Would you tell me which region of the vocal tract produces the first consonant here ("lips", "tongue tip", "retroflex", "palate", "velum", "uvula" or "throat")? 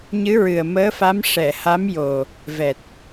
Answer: palate